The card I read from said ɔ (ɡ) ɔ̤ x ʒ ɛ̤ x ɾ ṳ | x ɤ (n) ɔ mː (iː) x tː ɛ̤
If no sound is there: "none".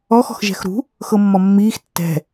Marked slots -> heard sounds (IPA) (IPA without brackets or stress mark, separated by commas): x, mː, iː